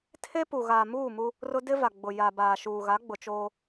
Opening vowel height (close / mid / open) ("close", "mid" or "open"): mid